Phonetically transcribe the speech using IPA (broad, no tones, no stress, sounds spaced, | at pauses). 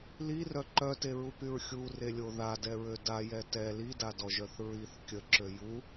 l i r œ ǃ œ t e ɹ u p y ɹ xʲ u r e lʲ o ð a d ɛ ɹ ø d a j ɛ t ɛ l i d a d ɔ ʒ œ θ ɹ i θ kʲ ə ǁ ø j u